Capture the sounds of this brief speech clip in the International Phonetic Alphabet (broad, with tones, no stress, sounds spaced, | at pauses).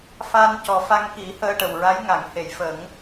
f a˧ n c ɔ˨˩ f a˧ ŋ k i˨˩˦ h əː˧ ʈ ə˨˩ w ɹ a˧˥ j ŋ a˨˩˨ ŋ h e˨˩˨ j f ə˨˩˦ ŋ